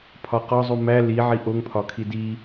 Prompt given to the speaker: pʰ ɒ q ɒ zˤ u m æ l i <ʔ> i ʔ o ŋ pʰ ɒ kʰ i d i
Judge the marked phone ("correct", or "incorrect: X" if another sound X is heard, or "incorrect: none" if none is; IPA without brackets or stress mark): incorrect: ʕ